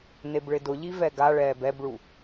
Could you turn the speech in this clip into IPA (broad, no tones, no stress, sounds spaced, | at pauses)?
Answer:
n e b ɭ ɪ d ʊ ʎ i v ɛ ɡ a ɭ ɛː b ɛ b ɭ u